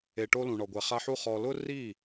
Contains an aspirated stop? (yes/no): no